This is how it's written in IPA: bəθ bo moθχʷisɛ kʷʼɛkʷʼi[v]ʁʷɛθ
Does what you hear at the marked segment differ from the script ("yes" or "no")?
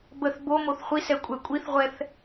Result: yes